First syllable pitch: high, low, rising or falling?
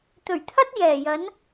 low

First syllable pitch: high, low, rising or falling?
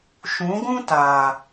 rising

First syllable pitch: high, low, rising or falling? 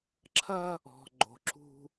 high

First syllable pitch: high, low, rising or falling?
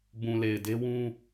low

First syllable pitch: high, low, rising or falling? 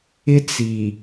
high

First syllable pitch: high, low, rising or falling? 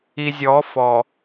low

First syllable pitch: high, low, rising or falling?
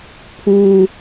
high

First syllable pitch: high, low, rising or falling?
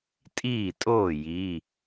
falling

